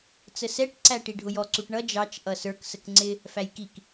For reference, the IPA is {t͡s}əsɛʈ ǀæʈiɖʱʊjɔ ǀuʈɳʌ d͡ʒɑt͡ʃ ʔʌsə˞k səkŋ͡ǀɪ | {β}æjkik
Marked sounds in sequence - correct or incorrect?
correct, incorrect: f

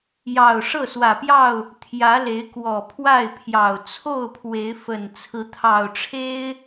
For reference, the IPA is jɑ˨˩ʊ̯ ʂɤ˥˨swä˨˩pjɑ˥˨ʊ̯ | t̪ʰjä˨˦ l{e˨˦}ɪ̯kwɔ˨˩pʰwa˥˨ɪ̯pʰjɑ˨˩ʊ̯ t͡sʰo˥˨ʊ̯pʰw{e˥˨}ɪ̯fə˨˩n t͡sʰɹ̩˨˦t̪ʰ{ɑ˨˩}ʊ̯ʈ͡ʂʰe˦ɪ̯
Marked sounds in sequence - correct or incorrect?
correct, incorrect: e˨˦, correct

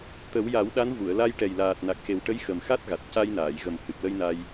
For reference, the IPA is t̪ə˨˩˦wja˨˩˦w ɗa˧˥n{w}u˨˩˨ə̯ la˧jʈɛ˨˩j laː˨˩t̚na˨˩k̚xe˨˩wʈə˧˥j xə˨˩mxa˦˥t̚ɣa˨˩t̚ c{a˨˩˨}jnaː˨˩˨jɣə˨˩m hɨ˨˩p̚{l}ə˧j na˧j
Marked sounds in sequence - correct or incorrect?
incorrect: v, incorrect: a˧, correct

